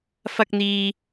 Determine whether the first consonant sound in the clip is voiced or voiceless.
voiceless